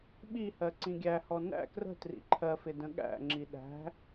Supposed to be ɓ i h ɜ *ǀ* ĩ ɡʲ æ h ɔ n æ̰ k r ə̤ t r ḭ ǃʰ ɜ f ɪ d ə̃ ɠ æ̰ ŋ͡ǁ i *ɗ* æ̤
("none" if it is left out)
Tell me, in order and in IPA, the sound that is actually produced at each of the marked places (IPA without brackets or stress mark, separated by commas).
ǀ, ɗ